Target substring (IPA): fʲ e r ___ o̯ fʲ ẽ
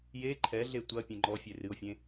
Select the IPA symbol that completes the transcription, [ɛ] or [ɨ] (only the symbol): ɨ